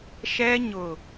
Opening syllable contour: high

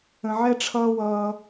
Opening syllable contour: low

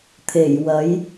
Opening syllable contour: low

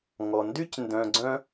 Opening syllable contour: low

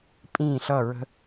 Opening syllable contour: falling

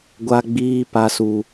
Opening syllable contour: high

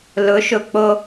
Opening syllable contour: rising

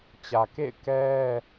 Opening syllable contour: low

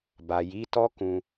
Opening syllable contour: low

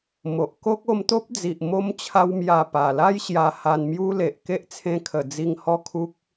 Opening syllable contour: low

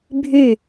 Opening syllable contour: falling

